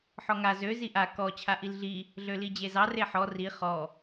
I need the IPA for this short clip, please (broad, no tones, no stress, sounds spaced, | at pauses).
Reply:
ħ ɔ ŋ a z ø z i ʔ a k ɔ t͡ɕʰ a ʔ i l ɮ i | ɮ ø l i d͡ʑ e z ɑ r e ħ ɔ r i χ ɔ